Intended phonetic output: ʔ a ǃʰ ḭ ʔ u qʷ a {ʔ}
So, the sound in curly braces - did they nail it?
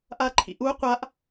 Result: yes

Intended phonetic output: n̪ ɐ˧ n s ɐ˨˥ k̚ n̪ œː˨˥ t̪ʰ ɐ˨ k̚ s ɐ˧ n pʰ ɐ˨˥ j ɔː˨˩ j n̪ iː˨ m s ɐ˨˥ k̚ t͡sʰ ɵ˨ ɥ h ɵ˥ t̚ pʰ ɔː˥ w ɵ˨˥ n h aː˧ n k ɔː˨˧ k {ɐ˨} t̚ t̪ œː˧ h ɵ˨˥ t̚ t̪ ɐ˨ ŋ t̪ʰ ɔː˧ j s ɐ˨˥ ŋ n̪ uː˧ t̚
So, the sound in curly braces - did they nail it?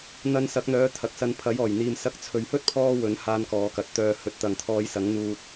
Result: yes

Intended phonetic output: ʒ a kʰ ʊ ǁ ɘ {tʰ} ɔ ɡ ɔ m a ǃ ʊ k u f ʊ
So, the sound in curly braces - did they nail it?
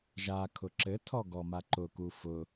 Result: yes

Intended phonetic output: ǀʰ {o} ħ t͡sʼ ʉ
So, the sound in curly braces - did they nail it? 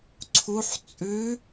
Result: no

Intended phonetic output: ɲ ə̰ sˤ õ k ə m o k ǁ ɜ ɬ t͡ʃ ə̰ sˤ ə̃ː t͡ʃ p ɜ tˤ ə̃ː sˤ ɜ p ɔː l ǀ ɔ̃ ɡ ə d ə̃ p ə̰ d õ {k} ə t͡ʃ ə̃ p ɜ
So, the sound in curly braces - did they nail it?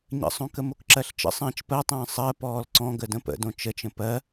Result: no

